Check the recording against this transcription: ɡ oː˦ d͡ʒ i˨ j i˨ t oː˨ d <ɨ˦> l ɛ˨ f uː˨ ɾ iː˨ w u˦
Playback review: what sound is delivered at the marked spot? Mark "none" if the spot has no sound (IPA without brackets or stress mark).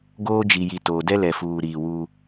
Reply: ɛ˦